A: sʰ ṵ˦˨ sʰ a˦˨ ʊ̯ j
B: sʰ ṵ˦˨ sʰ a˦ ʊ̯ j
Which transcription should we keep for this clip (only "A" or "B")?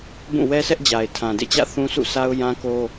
B